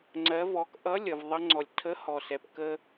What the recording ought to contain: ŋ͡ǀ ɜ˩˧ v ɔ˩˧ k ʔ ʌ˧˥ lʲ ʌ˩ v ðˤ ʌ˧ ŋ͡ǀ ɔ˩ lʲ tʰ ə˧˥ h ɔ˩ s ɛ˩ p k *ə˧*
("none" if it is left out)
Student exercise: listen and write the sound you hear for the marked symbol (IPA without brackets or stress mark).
ə˧